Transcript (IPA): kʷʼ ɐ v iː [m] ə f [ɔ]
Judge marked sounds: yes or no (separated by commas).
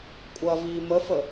yes, no